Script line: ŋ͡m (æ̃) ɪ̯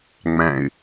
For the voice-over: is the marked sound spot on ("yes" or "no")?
yes